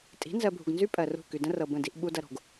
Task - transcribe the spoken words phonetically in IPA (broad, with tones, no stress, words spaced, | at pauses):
tʼi̤˨˦nzɜ˨bʱṳ˨ɡnzy˦ pʼɜ˨rṳ˦˨ ky˨də̃˦rɤ˨ bə̃˦˨di˦ʔ ɓu˦dɐ˦ɾo̤˨ɡ